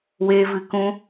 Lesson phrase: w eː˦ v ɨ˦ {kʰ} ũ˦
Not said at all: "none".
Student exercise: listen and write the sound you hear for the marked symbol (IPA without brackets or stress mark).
k